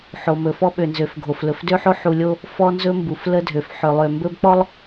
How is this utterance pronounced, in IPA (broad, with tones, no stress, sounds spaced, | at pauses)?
ħ o˨ m ɵ˨ f ɔ˦ ɓ ø˨ n z ø˨ f ɡʱ o˨ f l ɵ˨ f d ø˦ ħ o˦ ħ u˨ lʲ o˦ | f ɔ˦ n z ɵ˦ m b u˨ f l ə˦ dʱ ø˨ f ħ ø˨ lˠ ø˨ m b ɵ˦ b k͡p ɔ˦ lˠ